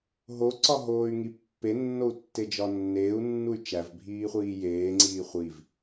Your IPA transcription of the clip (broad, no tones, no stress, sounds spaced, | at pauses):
ɦ o ǀ ɒ ɦ oː y̯ ŋ i pː e nː o u̯ tː e d͡ʒ ɒ nː eː u̯ nː u y̯ t͡ʃ æ v bʱ iː χʷ iː j eː ŋ͡ǀ iː χʷ i v